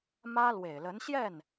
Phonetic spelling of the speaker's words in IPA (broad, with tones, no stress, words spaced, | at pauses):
mä˥lwe˨˩ɪ̯lə˧˥nɕjɛ˥˩n